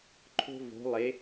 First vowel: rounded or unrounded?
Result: rounded